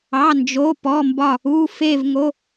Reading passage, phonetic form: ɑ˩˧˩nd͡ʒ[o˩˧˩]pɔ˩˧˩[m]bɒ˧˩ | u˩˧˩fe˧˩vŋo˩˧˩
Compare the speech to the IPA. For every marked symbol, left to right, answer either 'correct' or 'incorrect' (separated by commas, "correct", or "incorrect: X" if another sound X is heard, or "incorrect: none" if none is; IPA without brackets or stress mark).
correct, correct